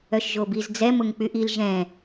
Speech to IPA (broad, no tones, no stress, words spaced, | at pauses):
œʃʒobiz d͡zɛ mʊŋk͡pyʔil ʒɛ̃